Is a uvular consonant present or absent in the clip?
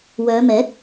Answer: absent